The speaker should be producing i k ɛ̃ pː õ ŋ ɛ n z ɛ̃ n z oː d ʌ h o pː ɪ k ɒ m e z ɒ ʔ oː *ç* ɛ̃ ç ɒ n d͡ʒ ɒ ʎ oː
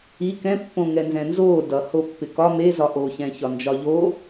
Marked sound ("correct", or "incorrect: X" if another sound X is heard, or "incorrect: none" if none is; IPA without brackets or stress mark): correct